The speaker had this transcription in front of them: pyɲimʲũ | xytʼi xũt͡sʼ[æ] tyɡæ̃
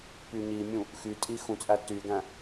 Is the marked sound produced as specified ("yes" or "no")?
yes